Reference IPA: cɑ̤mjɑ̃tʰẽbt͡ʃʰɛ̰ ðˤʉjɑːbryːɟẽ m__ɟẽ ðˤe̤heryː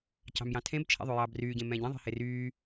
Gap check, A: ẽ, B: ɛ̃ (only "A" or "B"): B